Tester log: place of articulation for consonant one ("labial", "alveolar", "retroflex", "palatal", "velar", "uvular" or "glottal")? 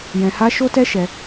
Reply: palatal